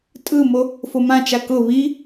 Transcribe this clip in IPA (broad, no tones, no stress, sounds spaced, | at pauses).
tʼ ɯ m o | f o m ã t͡ʃ a k ʊ β i